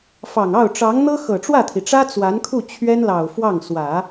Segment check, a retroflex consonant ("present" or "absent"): present